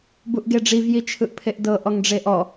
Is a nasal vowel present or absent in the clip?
absent